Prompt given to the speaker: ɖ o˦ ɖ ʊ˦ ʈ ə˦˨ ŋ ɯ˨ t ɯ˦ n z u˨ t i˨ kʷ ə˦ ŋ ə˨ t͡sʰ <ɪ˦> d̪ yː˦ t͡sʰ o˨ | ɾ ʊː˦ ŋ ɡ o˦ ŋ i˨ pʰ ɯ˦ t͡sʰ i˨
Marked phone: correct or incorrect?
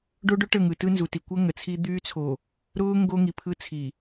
incorrect